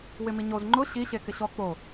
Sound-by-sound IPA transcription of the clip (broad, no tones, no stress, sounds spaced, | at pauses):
w ɪ m i ɲ o z ŋ͡ǃ ʊ ɕ i ɕ e k ɪ ɕ ɔ k͡p o